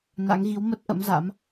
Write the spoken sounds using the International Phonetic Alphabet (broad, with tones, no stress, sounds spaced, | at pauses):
n a̰˧˥ ŋ ɣ i˨˦ w m ə˦˥ t̚ ʔ ə̰˧˥ m z a̰˧˥ m